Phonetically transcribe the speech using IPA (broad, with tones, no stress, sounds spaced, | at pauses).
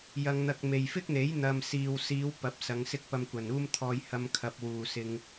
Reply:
j ɐ˧ ŋ n̪ ɐ˧ k̚ m e˨ j f ɪ˥ k̚ n̪ e˨˥ j n̪ ɐ˧ m s iː˨ w s iː˨˧ w p ɐ˨˥ p̚ s ɐ˨˧ ŋ s ɪ˥ k̚ p ɐ˧ m kʷ ɐ˨˩ n uː˥ m t̪ʰ ɔː˧ j h ɐ˧ m kʰ ɐ˨ p̚ w uː˨ s ɪ˧ ŋ